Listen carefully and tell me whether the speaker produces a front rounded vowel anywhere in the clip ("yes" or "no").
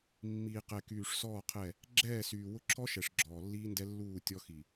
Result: yes